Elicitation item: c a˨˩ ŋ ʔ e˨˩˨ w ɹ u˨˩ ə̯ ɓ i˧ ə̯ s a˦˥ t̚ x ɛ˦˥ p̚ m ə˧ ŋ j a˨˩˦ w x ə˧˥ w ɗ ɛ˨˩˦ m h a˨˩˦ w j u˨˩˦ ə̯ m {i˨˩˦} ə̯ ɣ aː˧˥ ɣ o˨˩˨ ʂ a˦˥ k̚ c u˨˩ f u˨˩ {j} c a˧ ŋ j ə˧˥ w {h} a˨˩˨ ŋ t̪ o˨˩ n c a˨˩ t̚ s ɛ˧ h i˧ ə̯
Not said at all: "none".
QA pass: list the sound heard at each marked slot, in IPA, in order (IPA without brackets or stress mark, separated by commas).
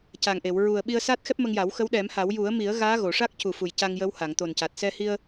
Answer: i˨˩˦, j, h